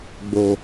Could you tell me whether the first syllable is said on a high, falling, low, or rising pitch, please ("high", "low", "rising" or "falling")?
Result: low